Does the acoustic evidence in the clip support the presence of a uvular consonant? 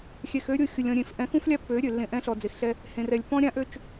no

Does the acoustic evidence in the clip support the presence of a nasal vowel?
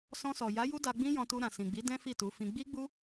yes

